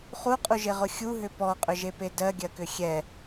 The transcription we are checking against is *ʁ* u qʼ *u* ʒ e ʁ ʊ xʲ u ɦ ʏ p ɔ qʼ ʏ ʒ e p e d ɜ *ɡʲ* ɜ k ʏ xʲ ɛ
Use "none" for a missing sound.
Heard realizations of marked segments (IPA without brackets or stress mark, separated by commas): χ, u, ɡʲ